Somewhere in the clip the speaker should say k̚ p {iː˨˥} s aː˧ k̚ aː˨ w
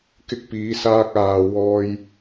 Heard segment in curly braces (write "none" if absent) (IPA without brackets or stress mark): iː˨˧